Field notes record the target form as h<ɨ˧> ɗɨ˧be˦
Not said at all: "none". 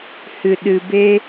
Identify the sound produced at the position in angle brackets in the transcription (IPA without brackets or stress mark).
ɨ˧